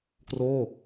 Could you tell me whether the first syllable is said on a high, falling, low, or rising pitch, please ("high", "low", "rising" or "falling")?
falling